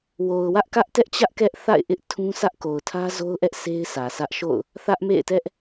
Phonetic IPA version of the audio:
wo˨ʊ̯wä˦ʔkä˦ʔ tɛ˦ʔt͡ɕä˦ʔ kɛ˦ʔθa̰˦˨ɪ̯ʔɪ˦ʔ tʰũ˦sʰä˦ʔ ko˨ʊ̯tʰä˦zo˦ʊ̯ʔɛ˦ʔ se˦ɪ̯sʰä˨sä˦ʔ ʃo̰˦˨ʊ̯ | θä˦ʔmḛ˦˨ɪ̯ tɛ˦ʔ

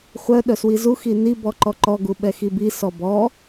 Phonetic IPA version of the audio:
χʷœ ɗœswizu xini bɔǃɔǃɔ ɡuɓɛxibi sɔbɔ

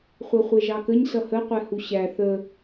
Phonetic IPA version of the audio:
χʷɛχʷɛʒɑkəɲ sʌhəqʷɛhu ɕæ θə

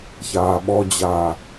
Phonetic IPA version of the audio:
çaːɓɔd͡ʑaː

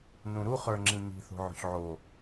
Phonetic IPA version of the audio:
nũɾuχə˞ ŋ͡ǁĩɲi̤θo̤ ʕo̤çʕo

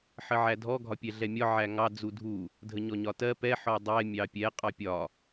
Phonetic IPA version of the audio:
ħəʕædʱɔ ɡʱɒpʲɛɮɛmʲɒ ʕæŋɑ d͡zudʱu | dʱəɲɔɲɒtɜ pɛ ħɔdˤɛ mʲɑpʲɛ qʼɑpʲɒ

